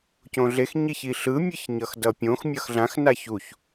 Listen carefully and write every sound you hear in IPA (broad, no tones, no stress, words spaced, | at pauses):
cõɮex ɲiçiɬɯ mʲɯçɲʌxdʌpʲõx mʲʌxɮãx naçuç